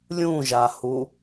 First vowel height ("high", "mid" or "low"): high